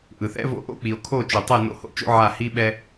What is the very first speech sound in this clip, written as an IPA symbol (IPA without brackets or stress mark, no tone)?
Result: ʔ